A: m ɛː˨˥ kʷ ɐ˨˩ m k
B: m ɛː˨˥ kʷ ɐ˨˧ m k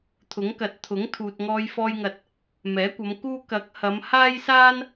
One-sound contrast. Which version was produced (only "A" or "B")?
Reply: B